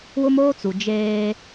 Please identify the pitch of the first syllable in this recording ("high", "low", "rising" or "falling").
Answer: high